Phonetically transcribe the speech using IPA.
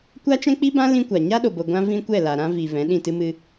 kʷ a˦ t͡ʃ ɛ̃˦ k͡p i˦ b ã˦ l ĩ˦ kʷ a˨ ɲ a˦ ɗ o˨ b o˨ ɡʷ ã˧ v ĩ˦ kʷ ɛ˦˨ l a˨ ɾ ã˧ v i˨ v ɛ̃˨˦ ɗ ĩ˦˨ t ɨ˦ m ɨ˧

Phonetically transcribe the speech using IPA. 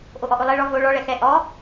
ʔ o ʔ ɔ ʔ o lˠ ɛ ɭ ɔ v o ɭ ɔ ɭ ɛ x ɛ ʔ ɔ

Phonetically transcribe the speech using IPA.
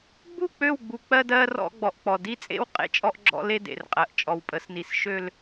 ɡ͡b u˦˨ k͡p ø˦˨ w ɡ͡b u˨ k͡p ɜ˦ d ɜ˦ r ɔ̰˦ ɡ͡b ɔ˨ ʔ k͡p ɔ˨ d i˦ t͡sʼ ḛ˦ w qʼ ḛ˦ t͡ʃʼ ɔ˦ ʔ ɡ͡ǁ ɔ̰˦ l e˦ d ḛ˨ r qʼ ɜ˨ ʔ t͡ʃʼ ɔ˨ w pʼ ə˨˦ s n i˨ s ʃ ø˦ l

